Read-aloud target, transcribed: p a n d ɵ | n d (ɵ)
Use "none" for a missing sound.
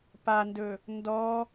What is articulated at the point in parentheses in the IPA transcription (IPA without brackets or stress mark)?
ɔ